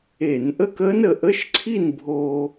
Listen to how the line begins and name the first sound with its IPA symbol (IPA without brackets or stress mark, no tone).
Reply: e